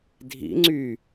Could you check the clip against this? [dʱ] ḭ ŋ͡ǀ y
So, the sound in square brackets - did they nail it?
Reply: yes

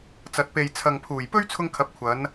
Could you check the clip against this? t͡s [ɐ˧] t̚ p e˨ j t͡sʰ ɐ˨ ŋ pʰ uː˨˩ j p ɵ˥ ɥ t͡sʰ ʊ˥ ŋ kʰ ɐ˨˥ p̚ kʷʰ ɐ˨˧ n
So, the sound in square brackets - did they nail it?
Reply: no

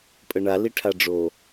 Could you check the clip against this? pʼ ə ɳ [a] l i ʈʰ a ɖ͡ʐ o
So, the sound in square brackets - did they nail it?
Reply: yes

